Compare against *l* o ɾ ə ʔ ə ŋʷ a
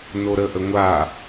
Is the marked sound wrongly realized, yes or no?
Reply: yes